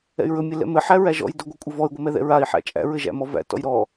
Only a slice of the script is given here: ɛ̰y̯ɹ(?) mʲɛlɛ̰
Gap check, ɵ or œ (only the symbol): ɵ